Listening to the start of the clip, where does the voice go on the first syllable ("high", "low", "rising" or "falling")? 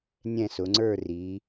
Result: falling